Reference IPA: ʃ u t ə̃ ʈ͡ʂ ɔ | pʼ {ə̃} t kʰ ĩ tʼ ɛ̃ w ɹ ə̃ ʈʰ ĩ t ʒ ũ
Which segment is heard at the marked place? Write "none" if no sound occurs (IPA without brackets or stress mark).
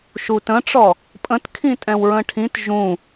ə̃